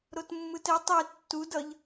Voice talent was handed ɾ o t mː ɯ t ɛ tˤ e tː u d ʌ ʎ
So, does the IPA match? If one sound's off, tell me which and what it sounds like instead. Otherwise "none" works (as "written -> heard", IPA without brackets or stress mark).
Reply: none